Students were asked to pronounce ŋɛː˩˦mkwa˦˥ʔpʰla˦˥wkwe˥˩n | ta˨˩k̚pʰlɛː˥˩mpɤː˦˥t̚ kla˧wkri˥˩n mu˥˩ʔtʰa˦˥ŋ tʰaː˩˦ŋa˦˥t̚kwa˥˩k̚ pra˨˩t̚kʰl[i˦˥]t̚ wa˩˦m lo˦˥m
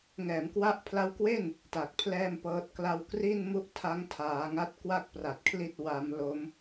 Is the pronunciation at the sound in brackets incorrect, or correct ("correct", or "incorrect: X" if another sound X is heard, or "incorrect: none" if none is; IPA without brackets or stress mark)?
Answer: incorrect: i˥˩